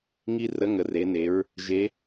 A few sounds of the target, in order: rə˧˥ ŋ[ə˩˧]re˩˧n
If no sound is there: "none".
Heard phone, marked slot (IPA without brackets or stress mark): ə˩˧